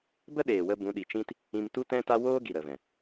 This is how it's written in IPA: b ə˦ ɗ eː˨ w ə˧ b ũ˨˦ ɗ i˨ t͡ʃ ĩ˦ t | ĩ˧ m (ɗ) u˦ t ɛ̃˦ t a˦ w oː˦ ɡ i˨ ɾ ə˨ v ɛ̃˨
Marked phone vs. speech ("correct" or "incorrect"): incorrect